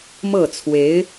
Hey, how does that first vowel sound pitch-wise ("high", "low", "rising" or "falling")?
falling